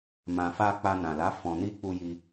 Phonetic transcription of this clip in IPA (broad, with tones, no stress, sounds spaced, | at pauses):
m ã˨ f a˧ k͡p a˧ n ã˨ l a˨˦ f ɔ̃˧ n i˦ k͡p u˧ j i˧